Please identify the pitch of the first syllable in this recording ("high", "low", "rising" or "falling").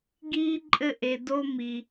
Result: high